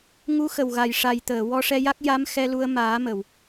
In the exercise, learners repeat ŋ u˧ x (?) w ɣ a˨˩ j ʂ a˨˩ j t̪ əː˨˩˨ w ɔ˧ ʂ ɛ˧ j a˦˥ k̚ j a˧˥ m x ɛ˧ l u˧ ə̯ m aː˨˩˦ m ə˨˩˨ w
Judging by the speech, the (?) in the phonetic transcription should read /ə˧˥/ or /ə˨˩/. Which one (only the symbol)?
ə˨˩